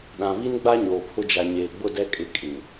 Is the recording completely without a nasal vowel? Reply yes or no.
no